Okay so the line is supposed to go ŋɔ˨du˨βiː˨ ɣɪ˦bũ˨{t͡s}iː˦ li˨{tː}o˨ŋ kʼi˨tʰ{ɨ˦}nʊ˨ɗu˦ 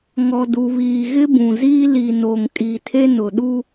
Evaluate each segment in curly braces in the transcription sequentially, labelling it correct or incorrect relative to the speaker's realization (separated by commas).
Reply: incorrect, incorrect, incorrect